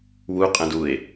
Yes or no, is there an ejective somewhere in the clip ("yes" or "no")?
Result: yes